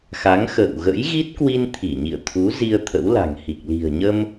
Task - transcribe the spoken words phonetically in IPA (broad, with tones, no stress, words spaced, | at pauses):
xa˨˦ŋxə̰ː˧˨w ɣə̰˧˥jɣi˦˥t̚kwi˧n t̪ʰi˧˩ɲḭ˧˨ə̯t̪ʰu˨˦ zi˧ə̯t̪ʰə̰˧˥wla̤˨˩ŋhi˨˩k̚ li̤˨˩ə̯ɲə˧m